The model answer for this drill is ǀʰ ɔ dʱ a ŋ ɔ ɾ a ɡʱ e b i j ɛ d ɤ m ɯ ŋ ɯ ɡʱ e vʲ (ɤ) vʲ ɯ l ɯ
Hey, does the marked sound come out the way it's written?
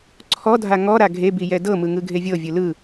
yes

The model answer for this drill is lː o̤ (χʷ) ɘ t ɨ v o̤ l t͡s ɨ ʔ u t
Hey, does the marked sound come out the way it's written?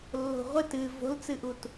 no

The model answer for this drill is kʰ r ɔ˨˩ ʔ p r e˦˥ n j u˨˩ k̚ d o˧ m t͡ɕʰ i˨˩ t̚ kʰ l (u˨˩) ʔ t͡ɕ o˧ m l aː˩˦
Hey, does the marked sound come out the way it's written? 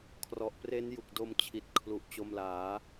yes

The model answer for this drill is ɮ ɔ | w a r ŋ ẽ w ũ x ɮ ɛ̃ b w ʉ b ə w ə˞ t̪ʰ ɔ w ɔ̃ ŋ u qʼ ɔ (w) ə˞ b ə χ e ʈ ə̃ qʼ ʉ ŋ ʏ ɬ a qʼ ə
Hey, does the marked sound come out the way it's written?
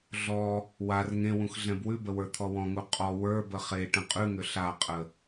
yes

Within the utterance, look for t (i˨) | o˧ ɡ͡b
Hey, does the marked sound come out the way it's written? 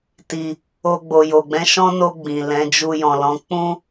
yes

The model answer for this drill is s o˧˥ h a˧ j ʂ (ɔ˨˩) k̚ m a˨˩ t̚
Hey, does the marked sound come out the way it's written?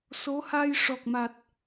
yes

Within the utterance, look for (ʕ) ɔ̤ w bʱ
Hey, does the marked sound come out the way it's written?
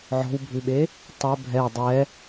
yes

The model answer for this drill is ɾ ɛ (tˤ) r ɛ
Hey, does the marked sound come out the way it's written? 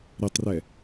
yes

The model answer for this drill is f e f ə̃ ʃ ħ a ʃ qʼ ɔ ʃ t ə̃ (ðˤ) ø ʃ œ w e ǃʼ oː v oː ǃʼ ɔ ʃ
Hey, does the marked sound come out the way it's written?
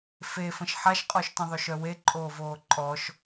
yes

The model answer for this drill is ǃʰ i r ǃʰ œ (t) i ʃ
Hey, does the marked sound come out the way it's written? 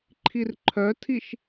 no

